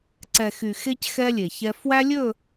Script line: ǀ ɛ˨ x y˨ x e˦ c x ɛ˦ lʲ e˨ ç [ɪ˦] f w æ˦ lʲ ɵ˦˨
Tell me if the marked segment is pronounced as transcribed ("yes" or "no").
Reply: no